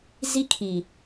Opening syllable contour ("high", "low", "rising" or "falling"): high